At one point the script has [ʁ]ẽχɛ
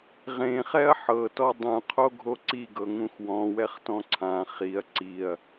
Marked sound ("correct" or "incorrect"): correct